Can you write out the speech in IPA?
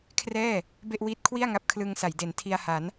kʰ r ɛː˥˩ | b e˥˩ ʔ w iː˦˥ t̚ kʰ w i˥˩ a̯ ŋ a˦˥ p̚ kʰ l ɯ˧ ŋ s a˩˦ j d e˩˦ n tʰ i˧ a̯ h a˩˦ n

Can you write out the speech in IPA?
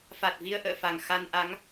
f a˨˩ t̚ v i˧ ə̯ ʔ ə̰ː˧˨ f a˨˩ ŋ x a˧ n ʔ a˨˦ ŋ

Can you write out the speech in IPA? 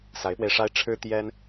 s a˧˥ ɪ̯ p w e˧ ɪ̯ ʂ a˥ ɪ̯ ʈ͡ʂʰ ɻ̩˥ t̪ j ɛ˥ n

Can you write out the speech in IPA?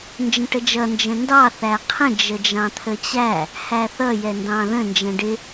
n d͡ʒ ə̃ ʈ ə d͡ʒ ʌ n d͡ʒ ə̃ n d ɑ θ æ qʰ ə̃ d͡ʒ ə d͡ʒ ɑ̃ t̪ʰ ə t͡ɕ æ | h æ θ ʌ j ɛ n d ɑ̃ ð ə̃ n d͡ʒ ɛ̃ ɖ ɪ

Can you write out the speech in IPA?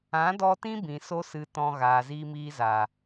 ã˨˦ d ɔ˧ t ĩ˦ b ĩ˨ s o˦ s ɨ˧ t ɔ̃˧ ɣ aː˨ z iː˧ m iː˧ z aː˨

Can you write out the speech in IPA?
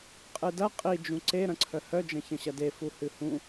qʼ ɨ d ɐ qʼ i d͡ʒ ũ ǀ e ɾ ɐ̃ ǀʰ œ h œ d͡ʒ ɐ̃ ç ɐ̃ ɕ ɐ d e f u h ɨ h ũ

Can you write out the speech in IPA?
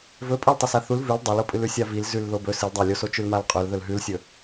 v ɵ pʼ ɵ l tˤ ɨ s a θ u l v ʉ l dˤ ɐ l o pʼ ɨ l ʉ sʲ a v i l z ʉ l ð o b ɵ s ɨ l dˤ a lʲ o s o t͡ʃ ʉ l m a l qʼ ɵ l ð ɵ l ɦ ʉ l sʲ ɵ

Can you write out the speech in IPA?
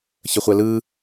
ç ə χʷ ɛ l ɯ

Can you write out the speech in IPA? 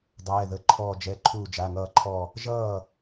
dˤ ɛː˩˧˩ ð ə˩˧˩ ǃʰ ɔː˧˩ d͡ʒ ɛ˩˧˩ ǃʰ uː˧˩ d͡ʒ a˩˧˩ ŋ ʌː˧˩ ǃʰ ɔ˧˩ | ʒ ʌː˥˩

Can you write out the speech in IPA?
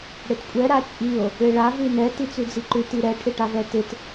ɽ ɪ t kʷʼ ɛ ɾ a t͡ʃʼ i o̯ | ɪ ɭ a v ʉ n ɛ t i t͡s ʉ d͡z i ǃ ʉ t i ɾ ɛ ʈʰ ɪ ʈ a v ɛ t ɪ t

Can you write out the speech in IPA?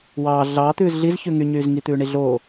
w ɑː ɮ ɑː t̪ ʉː z ɮ i z ç ʉ ŋ y ɲ yː z ŋ i t̪ ʉː ɳ i ɮ oː

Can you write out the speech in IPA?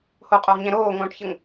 h o qʼ o ʁ ɲ ɛ̃ ɾ oː ŋ õː ʈ ç ə ŋ

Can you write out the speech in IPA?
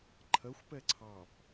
ǃʰ ɜ xʷ p ɛ ǀʰ ɑ p

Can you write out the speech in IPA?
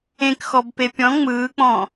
ẽ k x ɔ b p e pʲ ɔ̃ ŋ͡m ɯː k͡p ɔ̃

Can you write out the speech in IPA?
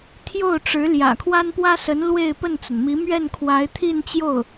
t̪ʰ j o˥˩ ʊ̯ ʈ͡ʂ ɻ̩˧˥ l j ä̰˨˩ kʰ w a˥ n p w ä˥ s ə˧˥ n l w e˥˧ ɪ̯ p ə˥˩ n t͡s ə˩ n m i˧˥ m ɥ ɛ˥˩ n kʰ w a˧˥ ɪ̯ t̪ʰ i˥˧ n t͡ɕ j o˥˩ ʊ̯

